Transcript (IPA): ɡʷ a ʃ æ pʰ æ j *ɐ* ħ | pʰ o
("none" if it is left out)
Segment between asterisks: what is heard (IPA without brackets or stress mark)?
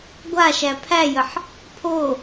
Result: ə